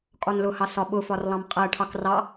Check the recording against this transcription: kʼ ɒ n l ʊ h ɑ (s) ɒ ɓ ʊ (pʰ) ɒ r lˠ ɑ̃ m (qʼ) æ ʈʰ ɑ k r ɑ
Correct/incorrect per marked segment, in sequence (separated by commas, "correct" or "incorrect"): correct, incorrect, correct